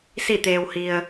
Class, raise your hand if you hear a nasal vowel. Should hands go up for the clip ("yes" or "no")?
no